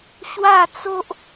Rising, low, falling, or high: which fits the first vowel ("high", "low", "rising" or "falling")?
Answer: falling